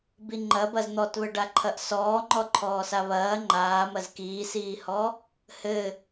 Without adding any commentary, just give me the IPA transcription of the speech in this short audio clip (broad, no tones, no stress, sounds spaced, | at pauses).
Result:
b i ŋ͡ǃ ɐ b ɐ z n̪ ɔ t β ɘ ɖ a ǃʰ ɐ ʔ s ɔː ŋ͡ǃ ɔ ǃʰ ɔː s a β ɐː ŋ͡ǃ aː m ɐ z k iː s iː h ɔ | h ɘ